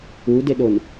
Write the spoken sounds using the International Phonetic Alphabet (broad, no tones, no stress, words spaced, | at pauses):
udɪɗon